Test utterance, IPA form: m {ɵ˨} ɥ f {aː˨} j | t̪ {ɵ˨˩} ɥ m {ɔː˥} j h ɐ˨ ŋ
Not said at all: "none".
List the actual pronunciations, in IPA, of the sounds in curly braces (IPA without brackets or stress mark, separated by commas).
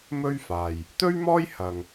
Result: ɵ˥, aː˨, ɵ˥, ɔː˥